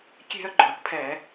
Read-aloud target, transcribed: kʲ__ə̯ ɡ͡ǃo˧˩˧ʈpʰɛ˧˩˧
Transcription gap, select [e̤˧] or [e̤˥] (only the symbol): e̤˧